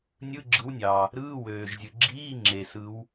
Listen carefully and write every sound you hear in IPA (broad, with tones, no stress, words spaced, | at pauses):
nʲɯ˧˥˧ɡ͡ǁɯ˨˥wnʲɑ˩ | ɾɯː˧˥˧wøː˩ʒzʲɯ˩ ɡ͡ǁiː˧˥˧ŋ͡ǁe˩ sɯ˨˥w